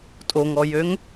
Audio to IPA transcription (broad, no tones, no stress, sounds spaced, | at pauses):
tʼ o ŋ ɔ j ø ŋ